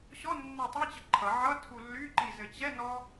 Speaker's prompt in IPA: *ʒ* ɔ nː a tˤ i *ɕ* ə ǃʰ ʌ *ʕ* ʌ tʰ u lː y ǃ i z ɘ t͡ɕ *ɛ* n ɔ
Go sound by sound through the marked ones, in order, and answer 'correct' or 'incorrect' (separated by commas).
incorrect, incorrect, correct, correct